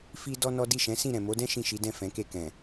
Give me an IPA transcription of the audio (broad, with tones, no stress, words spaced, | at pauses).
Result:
fi˦ dɔ˦nɔ˦ di˦˨ʃɛ̃˨˦sĩ˦˨ ɾɛ̃˨mo˨˦dɛ̃˦ ʃĩ˦˨ʃi˨˦dɛ̃˦˨ fɛ̃˨˦ke˦˨ kɛ̃˨